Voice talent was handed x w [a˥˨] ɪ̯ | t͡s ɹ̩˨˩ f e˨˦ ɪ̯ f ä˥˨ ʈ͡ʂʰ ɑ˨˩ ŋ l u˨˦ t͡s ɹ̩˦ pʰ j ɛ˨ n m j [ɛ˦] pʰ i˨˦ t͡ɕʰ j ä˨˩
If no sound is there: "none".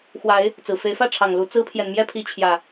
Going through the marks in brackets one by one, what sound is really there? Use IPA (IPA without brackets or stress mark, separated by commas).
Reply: a˨˦, ɛ˦